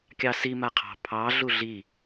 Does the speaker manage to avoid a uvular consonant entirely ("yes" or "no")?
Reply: no